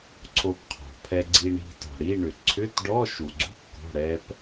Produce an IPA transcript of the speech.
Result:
ǀʰ o˧ p qʰ ɔ̤˩ pʰ ɛ˧ ɡ͡ǀ i˧ ɳ i̤˧ t ɔ̤˩ ɽ i˧˥˧ ɳ ʏ˩ ǀʰ ʏ˧˥˧ t ɖ ɔ˧˥˧ ʃ u˩ ɡ͡ǀ ṳ˧˥˧ kː ɔ̤˩˧˩ ɽ ɛ˧ p

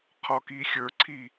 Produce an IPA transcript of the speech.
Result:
qʰ ɔ k i xʲ ə˞ ǀʰ i

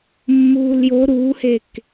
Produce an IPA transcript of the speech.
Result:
mː uː l j o ɾ uː h e k

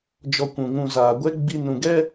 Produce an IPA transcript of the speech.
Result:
d͡ʒ ɔ˧ kʷ ũ˨ ŋ ũ˧ z aː˨ ɡʷ ɛ˦ ɡ͡b i˧ n ũ˨ ɡ ɛ˦

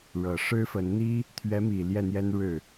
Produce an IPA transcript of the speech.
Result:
ɻ ɤ˨˩ ʂ ɻ̩˥ f ə˧˥ n n̪ i˥ | t̪ʰ ɥ ɛ˧˥ m i˨˩ l j ɛ˥˩ n̪ j ɛ˥ n ɻ ɻ̩˥˩

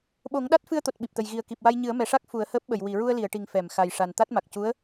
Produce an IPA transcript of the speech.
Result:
ɓ o˨˩˦ ŋ ɗ a˦˥ t̚ f ɨ˧ ə̯ t̪ o˨˩ t̚ ɓ i˨˩ p̚ t̪ ə˨˩ j ɣ i˨˩ ə̯ k i˨˩ p̚ w a˧ j ɲ ɨ˨˩˦ ə̯ m ɛ˨˩ ʂ a˦˥ k̚ f u˨˩˦ ə̯ h əː˦˥ p̚ ɓ ə˨˩˨ j w i˨˩˨ ɹ u˧ ə̯ l i˨˩˨ ə̯ ʈ i˨˩ ŋ f ɛ˨˩˨ m x a˨˩ j ʂ a˨˩ n t̪ a˦˥ t̚ m a˨˩ k̚ c u˧˥ ə̯

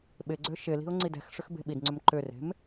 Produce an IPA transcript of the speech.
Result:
ɓ ɪ ɡ͡ǀ ø ʃ ɪ l i̤ ʊ̯ ŋ͡ǀ i d ɛ̤ x ʂ ʏ x b e̤ ɓ i d ŋ͡ǀ ʏ m ǃ ʏ r e̤ m

